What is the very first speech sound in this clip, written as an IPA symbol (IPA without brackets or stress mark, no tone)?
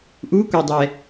ʔ